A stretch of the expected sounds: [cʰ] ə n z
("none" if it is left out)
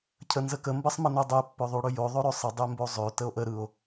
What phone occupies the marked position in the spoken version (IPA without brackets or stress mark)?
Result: cʰ